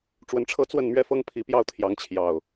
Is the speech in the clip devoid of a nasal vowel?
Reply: yes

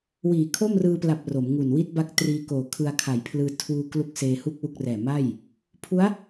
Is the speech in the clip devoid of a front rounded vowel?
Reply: yes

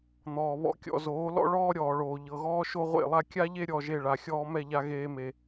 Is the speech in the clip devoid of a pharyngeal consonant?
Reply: yes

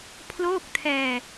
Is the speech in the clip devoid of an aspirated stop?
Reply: no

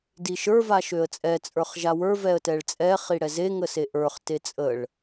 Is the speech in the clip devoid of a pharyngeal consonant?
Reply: yes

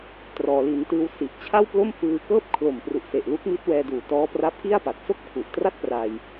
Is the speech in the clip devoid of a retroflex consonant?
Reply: yes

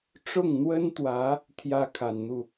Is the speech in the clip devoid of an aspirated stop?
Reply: no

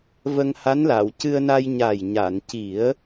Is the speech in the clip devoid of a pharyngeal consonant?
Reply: yes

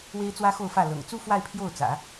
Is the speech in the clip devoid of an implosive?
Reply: yes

